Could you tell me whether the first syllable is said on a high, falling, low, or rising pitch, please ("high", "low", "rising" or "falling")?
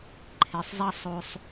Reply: low